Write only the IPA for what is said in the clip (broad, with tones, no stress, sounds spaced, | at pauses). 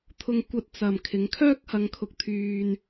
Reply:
t̪ʰ ʊ˧ ŋ kʷ ɐ˧ t̚ t͡s ɐ˨ m kʰ ɪ˨˧ ŋ kʰ œː˥ k̚ h ɐ˧ ŋ kʰ ʊ˧ k̚ t̪ʰ yː˧ n